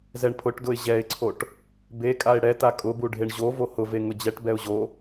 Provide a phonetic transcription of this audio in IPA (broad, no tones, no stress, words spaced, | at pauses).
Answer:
zɛɳpʰʊʈdʊɪ̯ ʑɛɪ̯ǀʰoʈ | bekʼaɪ̯ ɽɛta kʼʊbuɖʱeɳ ʑo vohʊve ŋʊd͡ʑɛʈ bɛʊ̯ʑo